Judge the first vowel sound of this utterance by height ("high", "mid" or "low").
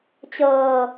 mid